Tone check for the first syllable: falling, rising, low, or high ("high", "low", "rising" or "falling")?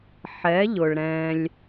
rising